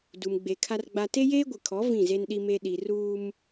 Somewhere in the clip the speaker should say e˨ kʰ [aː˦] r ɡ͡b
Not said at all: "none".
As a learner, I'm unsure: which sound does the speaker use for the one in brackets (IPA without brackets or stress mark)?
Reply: a˦